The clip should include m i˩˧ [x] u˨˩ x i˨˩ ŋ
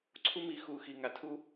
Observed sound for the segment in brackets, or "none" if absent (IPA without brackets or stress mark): x